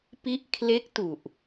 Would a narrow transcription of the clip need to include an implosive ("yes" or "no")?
no